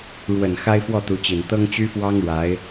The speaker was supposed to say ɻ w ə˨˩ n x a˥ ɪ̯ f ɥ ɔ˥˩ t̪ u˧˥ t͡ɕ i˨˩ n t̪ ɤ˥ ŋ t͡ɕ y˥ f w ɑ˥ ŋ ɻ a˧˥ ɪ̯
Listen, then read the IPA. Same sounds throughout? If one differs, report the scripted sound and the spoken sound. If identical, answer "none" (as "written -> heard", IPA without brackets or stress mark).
ɥ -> w